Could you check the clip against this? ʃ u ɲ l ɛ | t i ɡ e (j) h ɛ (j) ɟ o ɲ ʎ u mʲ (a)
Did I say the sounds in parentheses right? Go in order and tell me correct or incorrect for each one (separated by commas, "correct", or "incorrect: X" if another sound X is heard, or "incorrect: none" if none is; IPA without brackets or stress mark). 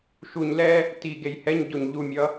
correct, incorrect: ɲ, incorrect: ʌ